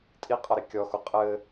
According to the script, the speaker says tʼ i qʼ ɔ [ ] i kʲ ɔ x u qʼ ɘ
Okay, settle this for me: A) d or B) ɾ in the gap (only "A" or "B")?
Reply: B